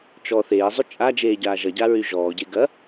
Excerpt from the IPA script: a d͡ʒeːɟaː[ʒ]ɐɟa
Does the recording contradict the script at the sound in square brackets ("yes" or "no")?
no